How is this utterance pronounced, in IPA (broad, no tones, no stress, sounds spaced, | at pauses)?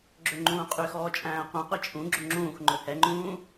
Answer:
ɡ͡ǁ ɵ ŋ͡ǃ ũː qʼ y x ɔː t͡ʃʼ æ̃ː ɐ̯ qʷ æ̃ qʷ ɛ t͡ʃʼ ũ ɡ͡ǁ ɵ ŋ͡ǁ ũː x ŋ͡ǃ ɵ h ɛ ŋ͡ǃ ũː